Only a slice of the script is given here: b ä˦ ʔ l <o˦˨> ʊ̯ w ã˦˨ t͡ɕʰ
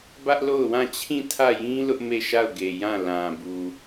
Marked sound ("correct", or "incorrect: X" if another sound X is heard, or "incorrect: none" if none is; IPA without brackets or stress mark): correct